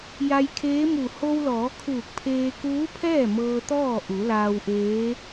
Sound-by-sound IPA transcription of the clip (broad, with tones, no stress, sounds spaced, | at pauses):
j a˧ j kʰ eː˧˥ m u˧˩ h o˧ w l ɔː˩˧ kʰ uː˧˩ k̚ pʰ eː˧ k uː˧˥ pʰ ɛː˥˨ m ɤː˧ t̪ ɔː˥˨ ʔ u˩˧ l aː˧ w ʔ eː˧˥